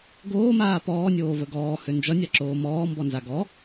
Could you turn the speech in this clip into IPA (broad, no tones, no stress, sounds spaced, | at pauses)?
ɡ oː m aː p ɔː nʲ oː v ə ɡ ɔː h ø n d͡ʒ ʌ nʲ a ǁ oː m ɔː m b ɔ n z a ɡ ɔ